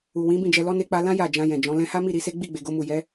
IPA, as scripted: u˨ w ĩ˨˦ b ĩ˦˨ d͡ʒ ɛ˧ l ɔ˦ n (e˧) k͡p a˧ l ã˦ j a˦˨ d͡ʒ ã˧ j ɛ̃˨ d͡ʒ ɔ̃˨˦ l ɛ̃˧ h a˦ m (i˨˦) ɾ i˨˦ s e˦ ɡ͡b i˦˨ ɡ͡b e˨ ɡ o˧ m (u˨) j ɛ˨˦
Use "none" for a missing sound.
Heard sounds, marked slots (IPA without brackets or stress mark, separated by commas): e˧, i˦˨, u˨